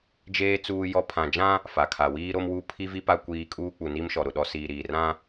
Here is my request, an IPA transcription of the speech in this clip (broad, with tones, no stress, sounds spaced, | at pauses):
d͡ʒ eː˦ t͡s uː˦ j ɔ˦ pʰ ã˨ d͡ʒ ã˦ | f a˨ kʰ a˨ w iː˦ ɾ o˦ m w u˦˨ pʰ i˦ v i˦ p a˦ kʷ iː˦ kʼ uː˦ k͡p u˨ n i˦ m ʃ ɔ˨ ɾ ʊ˨ ɗ ɔ˨ s iː˨ ɾ iː˨ r ã˦